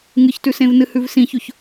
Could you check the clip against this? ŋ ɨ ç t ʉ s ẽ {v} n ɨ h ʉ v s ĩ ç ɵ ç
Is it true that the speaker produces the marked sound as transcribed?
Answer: yes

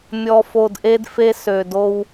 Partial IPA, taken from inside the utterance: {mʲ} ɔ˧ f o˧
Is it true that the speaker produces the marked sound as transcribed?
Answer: yes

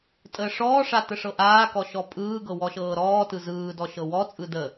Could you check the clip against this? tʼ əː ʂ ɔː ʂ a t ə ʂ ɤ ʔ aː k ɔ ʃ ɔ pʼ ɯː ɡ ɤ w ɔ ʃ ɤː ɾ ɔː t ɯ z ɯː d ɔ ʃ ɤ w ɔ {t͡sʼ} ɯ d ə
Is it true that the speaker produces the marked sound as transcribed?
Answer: yes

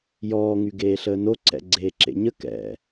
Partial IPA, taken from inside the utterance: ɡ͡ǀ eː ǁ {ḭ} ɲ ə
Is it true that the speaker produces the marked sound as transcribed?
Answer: no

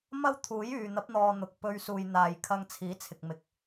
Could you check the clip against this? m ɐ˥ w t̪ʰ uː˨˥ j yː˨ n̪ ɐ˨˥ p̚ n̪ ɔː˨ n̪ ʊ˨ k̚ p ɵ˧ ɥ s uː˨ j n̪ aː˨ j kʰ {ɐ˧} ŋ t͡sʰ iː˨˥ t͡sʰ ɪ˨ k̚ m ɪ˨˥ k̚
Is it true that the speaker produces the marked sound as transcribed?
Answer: yes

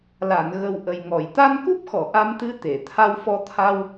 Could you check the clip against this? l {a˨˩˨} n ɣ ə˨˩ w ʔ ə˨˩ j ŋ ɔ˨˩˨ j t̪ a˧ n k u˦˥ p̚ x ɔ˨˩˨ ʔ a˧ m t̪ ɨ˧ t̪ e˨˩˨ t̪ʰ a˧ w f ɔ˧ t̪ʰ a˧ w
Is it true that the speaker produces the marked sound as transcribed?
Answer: yes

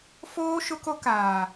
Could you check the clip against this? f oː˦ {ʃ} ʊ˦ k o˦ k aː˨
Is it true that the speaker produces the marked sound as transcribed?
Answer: yes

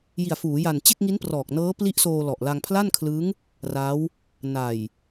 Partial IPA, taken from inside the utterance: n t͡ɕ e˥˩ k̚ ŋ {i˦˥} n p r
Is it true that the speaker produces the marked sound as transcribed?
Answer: yes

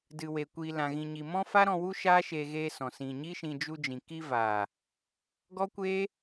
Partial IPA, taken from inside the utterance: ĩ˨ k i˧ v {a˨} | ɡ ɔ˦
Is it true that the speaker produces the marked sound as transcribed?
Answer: no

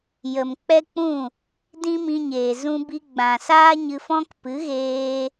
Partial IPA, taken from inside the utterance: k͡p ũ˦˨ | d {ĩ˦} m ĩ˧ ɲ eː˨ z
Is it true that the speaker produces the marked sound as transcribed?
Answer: yes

